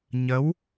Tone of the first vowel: rising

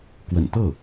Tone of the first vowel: low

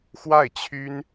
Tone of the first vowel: falling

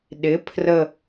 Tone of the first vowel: rising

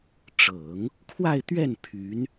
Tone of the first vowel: low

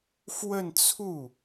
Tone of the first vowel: falling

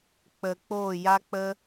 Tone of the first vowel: low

